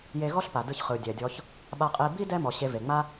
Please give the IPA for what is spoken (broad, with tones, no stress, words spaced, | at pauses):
je˨ɣɔ˦ɬ pa˩dɯ˨çχɯ˩ dʲɛ˩ dʲɔ˨ç | ɓa˨qʼi˨bi˥ dɛ˦mɔ˩ɕe˨ ve˩ŋ͡ma˦